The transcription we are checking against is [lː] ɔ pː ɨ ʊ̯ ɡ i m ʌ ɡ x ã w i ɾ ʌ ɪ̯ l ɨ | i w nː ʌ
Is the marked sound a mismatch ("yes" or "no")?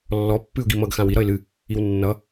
no